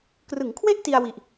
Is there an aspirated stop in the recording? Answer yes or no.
yes